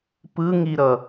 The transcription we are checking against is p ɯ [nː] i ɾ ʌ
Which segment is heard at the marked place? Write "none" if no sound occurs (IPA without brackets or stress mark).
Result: ŋ